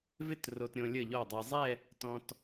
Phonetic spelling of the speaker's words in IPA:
v ɪ˥˧ t r o˧ t ɾʲ õ˧ lʲ ə˥˩ ʎ ɔ˥˩ dˤ e˧ zˤ ɛ˥˧ | t ɔ̃˧ t

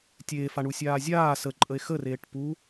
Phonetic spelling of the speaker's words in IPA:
tʲ eː f a ɳ u sʲ aː zʲ aː s ə ǃʼ ə e̯ x ə r eː ʈ p u

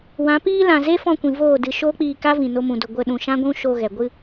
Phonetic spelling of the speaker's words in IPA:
w ã˨˦ p iː˦ l ã˨ z e˦ f ɔ̃˧ kʷ ĩ˨ v oː˦˨ d ɨ˧ ʃ oː˦ k͡p iː˧ k a˦ v ĩ˨ n o˧ m ũ˨ d o˨ ɡʷ ə˧ ɗ ũ˨ ʃ ã˦ ɡʷ ũ˦ ʃ o˧ ɣ ɛ˨ ɡʷ ɨ˧

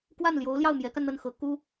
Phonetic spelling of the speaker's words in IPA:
k w a˥˩ n l j o˧˥ ʊ̯ l j ɑ˥˩ ʊ̯ m j ɛ˧˥ k a˧ n n̪ ə˥˩ n x ɤ˧˥ k u˥

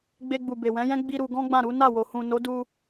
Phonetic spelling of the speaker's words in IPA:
ɡ͡b e˧ ɡ͡b u˨ b e˨ w ɛ̃˨˦ j ɛ̃˦ ɡ͡b i˧ ɾ u˧ ɡ ɔ̃˦ ɡ͡b ã˦˨ ɾ u˨˦ n a˦˨ w o˨ h ũ˨ n o˨˦ d u˧

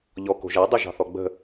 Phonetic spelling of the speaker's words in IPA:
ʎ ɔ k o̤ ʒ æ dˤ ʉ ʒ ɑ̤ θ ɔ ɡ͡b ə̤

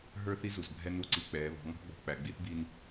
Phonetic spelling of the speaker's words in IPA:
ɦ ə˞˦ θ i˦ z u˨ z bʱ ɛ˦ n u˦˨ ǀ i˦ k͡p ɛː˨˦ β ɔ̤˨˦ ŋ ɔ̤˦ ɡ͡b ɔ̤˨ k͡p æ˨ ɡ͡b i˦ θ b i˦ n

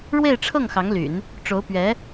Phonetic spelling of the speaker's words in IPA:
ɻ w e˥˧ ɪ̯ ʈ͡ʂʰ ɤ˥˩ ŋ x ɑ˧˥ ŋ l y̰˨˩˦ n | ʈ͡ʂ o˧˥ ʊ̯ p ɥ ɛ˧˥

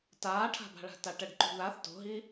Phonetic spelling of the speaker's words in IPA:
t aː ʈʰ a̤ b a̤ ɭ a̤ t a ʈ ɛ ɖ ǃ ṳ ð a θ t o̤ ɦ i

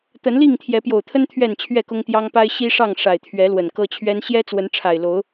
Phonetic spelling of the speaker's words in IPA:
t̪ ə˨˦ n l i˥˨ ŋ t̪ʰ j ɛ˨˦ p j o˨˩ ʊ̯ t̪ʰ ə˦ n t̪ʰ ɥ ɛ˥˨ n t͡ɕʰ ɥ ɛ˥˨ k ʊ˦ ŋ t̪ j ɑ˦ ŋ p a˦ ɪ̯ ɕ i˦ ʂ ɑ˥˨ ŋ ʂ a˨˩ ɪ̯ t̪ʰ ɥ ɛ˨˦ l w ə˨˩ n k ɤ˦ t͡ɕʰ ɥ ɛ˦ n ɕ j ɛ˦ t͡s w ə˨˦ n ʈ͡ʂʰ a˨˩ ɪ̯ l o˨˦ ʊ̯

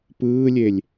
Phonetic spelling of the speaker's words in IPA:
p ɯː lʲ e lʲ

